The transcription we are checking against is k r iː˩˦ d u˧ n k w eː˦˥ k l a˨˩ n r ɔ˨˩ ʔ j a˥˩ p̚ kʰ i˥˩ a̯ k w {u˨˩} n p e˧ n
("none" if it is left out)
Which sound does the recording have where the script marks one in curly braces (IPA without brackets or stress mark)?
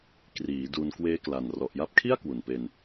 u˨˩